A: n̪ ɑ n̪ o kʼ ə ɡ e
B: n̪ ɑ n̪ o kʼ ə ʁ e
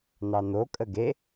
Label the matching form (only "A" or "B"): A